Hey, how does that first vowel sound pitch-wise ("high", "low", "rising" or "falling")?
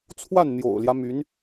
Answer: falling